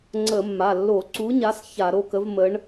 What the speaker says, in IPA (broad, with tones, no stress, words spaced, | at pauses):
ŋ͡ǀə˧˩˧mːa˩˧˩ lːo˧˩˧ǀu˨˥ɲa˨˥s ça˧˩˧ɾo˩˧˩kə˨˥vmə˨˥ɳ